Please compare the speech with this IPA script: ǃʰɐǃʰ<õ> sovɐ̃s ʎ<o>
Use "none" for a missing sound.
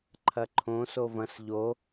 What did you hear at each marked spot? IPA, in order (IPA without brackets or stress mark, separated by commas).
õ, o